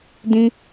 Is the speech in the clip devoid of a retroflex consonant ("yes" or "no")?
yes